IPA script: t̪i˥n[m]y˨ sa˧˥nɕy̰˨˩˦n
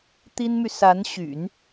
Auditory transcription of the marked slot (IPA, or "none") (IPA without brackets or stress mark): m